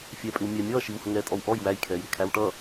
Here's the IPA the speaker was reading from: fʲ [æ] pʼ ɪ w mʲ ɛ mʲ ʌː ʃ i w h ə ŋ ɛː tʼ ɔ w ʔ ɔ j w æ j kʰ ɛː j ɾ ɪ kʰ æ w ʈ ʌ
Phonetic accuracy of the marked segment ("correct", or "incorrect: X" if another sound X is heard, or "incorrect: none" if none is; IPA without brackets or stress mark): incorrect: ɛ